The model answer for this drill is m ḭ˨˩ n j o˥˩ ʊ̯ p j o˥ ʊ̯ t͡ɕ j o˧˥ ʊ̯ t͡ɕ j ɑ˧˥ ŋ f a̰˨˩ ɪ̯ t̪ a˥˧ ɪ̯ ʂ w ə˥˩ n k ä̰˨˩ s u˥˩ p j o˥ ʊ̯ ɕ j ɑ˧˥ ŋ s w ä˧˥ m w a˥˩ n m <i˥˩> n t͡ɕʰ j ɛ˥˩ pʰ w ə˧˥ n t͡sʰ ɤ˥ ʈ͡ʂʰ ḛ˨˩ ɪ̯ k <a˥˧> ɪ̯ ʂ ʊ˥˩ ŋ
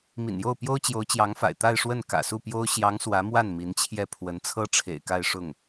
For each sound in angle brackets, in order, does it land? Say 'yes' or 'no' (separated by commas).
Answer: no, yes